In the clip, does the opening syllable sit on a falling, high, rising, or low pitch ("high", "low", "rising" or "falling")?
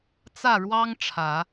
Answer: falling